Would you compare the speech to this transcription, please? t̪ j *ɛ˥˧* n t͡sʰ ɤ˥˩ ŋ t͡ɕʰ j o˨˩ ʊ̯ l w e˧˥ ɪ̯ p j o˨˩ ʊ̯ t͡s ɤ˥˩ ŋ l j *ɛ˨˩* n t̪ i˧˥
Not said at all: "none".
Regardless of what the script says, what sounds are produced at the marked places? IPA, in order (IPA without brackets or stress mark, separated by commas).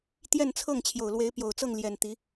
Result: ɛ˥˧, ɛ˨˩